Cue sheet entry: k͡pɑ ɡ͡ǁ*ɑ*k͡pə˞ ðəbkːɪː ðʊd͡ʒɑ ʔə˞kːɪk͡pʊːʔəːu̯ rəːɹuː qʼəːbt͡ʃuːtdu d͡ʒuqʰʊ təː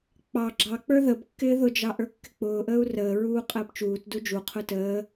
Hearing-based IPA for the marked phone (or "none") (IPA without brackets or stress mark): ɑ